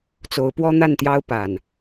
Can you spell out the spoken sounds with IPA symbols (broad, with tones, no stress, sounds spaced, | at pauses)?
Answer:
t͡s o˨˦ ʊ̯ p w ɔ˦ n̪ a˥˨ n t̪ j ɑ˦ ʊ̯ p a˨˩ n